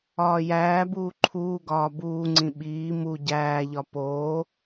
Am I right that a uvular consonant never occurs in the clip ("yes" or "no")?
yes